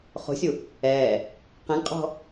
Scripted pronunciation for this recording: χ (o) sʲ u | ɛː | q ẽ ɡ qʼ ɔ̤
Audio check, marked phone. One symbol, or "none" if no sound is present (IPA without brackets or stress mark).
o̤